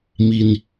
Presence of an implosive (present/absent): absent